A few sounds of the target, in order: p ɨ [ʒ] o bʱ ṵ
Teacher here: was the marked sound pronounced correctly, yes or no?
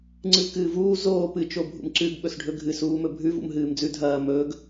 no